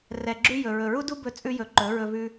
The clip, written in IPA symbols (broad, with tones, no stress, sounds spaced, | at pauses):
r ɛ˨ ɡ͡ǁ ʉ˧ j ɵ˨ ɹ ɵ˨ ɹ u˦ d u˦ b ɵ˧ t͡sʼ ʉ˧ j ɵ˨ ǃ ɵ˨˦ ɹ ɵ˧ v ʉ˧